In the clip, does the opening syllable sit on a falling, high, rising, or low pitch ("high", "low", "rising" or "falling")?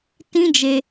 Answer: high